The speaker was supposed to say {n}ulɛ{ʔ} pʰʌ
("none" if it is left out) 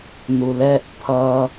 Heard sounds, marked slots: n, ʔ

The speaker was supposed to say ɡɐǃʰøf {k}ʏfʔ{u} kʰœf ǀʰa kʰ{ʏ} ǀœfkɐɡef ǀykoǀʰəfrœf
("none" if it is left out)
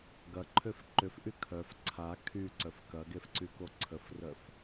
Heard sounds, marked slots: ǃ, y, y

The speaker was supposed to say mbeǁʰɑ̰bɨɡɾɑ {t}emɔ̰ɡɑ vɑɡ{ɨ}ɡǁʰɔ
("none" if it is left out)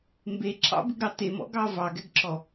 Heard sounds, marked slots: t, ɛ

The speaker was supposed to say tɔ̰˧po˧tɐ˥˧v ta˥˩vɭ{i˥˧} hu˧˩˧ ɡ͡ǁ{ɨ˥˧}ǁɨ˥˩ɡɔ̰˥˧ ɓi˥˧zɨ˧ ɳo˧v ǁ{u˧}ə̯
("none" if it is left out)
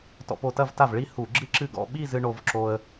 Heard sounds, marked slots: i˥˧, ɨ˥˩, o˧

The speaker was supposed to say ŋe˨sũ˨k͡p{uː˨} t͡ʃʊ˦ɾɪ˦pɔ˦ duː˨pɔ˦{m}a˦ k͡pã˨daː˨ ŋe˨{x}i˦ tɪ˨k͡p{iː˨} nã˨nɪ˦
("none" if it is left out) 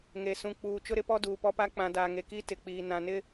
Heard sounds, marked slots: uː˨, p, k, iː˨

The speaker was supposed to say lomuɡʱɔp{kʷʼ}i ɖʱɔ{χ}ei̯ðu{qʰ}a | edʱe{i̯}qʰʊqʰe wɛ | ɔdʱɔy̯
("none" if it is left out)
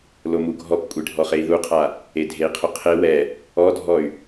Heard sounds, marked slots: kʷʼ, χ, qʰ, i̯

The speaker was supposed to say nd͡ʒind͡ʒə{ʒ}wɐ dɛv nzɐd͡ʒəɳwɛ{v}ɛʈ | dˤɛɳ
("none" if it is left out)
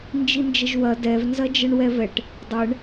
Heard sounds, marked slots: ʒ, v

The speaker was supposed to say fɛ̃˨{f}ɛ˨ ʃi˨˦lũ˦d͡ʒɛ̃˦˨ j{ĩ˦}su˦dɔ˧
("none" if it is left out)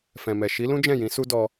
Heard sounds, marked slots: m, ĩ˨˦

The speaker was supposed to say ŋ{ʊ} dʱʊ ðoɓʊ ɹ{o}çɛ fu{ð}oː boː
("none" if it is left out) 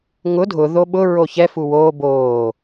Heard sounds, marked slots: ʊ, o, w

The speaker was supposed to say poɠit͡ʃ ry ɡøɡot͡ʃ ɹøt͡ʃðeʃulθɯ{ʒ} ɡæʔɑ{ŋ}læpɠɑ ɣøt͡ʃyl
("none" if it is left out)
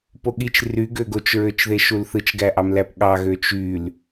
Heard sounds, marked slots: t͡ʃ, m

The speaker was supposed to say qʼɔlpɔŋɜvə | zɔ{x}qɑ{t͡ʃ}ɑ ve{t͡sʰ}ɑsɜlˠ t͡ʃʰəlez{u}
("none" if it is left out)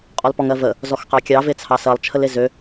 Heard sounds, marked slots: x, kʲ, t͡sʰ, ø

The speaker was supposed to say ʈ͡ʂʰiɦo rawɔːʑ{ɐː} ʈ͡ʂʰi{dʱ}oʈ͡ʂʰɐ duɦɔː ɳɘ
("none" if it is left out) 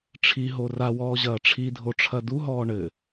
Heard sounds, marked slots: ɐː, dʱ

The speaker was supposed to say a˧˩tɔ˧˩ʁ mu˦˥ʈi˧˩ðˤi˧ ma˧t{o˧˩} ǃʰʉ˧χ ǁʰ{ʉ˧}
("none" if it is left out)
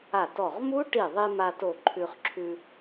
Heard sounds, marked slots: o˧˩, ʉ˧

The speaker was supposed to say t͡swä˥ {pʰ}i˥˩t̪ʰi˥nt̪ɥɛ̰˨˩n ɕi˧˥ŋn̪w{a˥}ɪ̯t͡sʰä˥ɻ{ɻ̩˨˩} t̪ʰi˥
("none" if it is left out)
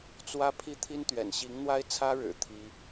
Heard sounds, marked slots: pʰ, a˥, ɻ̩˨˩

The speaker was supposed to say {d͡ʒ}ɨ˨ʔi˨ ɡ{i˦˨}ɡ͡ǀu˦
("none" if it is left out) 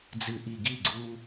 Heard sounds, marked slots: d͡z, i˦˨

